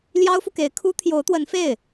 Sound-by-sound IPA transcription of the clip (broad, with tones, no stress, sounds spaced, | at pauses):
l j ɑ˥ ʊ̯ f u˨ k e˧˥ ɪ̯ kʰ u˥ t̪ʰ j o˧˥ ʊ̯ t̪ w ə˧˥ n f e˥˩ ɪ̯